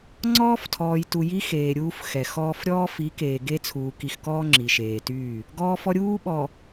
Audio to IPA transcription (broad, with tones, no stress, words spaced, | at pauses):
ŋ͡ǀɔː˦ftʰɔː˨jtu˨ ji˦xeː˨ ɾʲuː˦fxɛ˨xɔː˦f ɾʲɔː˦fi˨˦ keː˨ɡe˦t͡sʰuː˨ ki˨xkɔː˦ ŋ͡ǁi˨ʃeː˨tyː˦˨ | ɡɔː˦fɔ˦ ɾʲuː˦ ɓɔ˨